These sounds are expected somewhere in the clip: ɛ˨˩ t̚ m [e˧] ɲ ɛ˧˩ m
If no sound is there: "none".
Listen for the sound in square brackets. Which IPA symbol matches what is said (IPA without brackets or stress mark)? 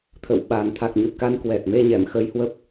e˧